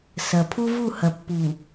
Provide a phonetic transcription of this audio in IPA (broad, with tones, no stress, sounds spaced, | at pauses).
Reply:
s ɐ˨ pʰ u˦ v u˦˨ h ɐ˨ pː uː˨